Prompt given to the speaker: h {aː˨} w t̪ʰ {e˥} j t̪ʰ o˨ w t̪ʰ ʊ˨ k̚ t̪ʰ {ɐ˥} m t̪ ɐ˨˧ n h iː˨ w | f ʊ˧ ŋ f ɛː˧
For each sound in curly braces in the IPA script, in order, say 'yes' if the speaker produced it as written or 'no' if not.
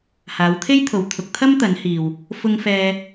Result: no, yes, yes

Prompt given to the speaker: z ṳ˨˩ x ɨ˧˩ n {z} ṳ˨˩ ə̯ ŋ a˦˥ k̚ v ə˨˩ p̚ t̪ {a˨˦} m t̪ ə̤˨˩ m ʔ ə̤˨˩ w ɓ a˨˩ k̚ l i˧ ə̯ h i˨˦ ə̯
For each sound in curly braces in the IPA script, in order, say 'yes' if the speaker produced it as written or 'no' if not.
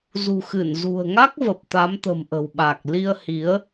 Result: yes, yes

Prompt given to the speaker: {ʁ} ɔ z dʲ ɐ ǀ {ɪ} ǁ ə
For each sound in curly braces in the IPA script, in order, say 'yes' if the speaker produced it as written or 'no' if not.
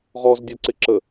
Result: yes, yes

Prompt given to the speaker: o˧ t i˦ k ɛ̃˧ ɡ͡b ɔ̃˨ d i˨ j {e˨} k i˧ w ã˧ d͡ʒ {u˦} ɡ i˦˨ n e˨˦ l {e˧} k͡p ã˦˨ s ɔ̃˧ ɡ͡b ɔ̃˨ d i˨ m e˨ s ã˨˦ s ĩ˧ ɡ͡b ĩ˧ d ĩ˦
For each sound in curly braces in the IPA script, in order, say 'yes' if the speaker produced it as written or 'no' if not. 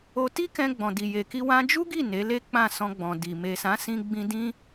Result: yes, yes, no

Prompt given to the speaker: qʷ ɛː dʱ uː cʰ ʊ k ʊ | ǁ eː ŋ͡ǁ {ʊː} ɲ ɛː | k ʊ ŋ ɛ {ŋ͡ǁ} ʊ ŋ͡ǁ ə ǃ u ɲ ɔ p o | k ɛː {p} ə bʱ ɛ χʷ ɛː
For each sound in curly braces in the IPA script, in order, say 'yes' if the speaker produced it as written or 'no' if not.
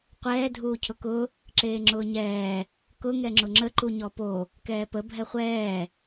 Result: yes, yes, yes

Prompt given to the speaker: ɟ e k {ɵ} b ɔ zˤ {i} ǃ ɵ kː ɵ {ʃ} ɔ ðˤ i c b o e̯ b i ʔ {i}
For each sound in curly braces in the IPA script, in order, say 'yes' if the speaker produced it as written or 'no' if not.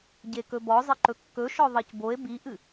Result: yes, no, yes, no

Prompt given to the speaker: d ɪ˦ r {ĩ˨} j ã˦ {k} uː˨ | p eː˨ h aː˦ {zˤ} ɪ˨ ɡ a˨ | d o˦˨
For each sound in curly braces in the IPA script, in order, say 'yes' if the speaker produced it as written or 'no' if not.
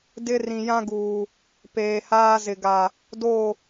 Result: yes, no, no

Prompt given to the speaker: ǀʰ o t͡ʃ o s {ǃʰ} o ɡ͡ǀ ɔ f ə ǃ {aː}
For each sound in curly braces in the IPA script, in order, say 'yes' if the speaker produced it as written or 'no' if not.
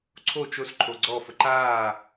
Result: yes, yes

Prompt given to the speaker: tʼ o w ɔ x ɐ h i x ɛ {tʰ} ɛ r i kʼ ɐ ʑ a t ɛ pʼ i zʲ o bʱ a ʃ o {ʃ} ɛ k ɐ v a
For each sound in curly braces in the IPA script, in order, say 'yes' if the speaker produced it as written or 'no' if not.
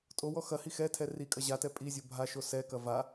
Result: yes, no

